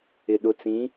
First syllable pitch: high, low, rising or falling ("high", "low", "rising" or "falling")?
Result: low